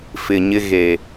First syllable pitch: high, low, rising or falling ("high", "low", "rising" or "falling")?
low